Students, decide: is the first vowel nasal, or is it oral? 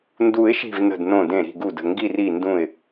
oral